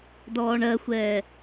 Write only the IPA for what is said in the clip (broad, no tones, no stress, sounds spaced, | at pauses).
d ɔː ɳ ɜ xʷ ɛː